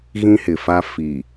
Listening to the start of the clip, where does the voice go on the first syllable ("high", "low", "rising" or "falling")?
high